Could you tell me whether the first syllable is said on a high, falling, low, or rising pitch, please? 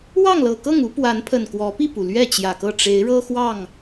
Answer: falling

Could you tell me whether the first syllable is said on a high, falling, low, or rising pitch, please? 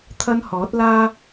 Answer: high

